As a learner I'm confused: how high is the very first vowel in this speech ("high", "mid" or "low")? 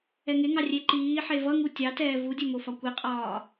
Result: mid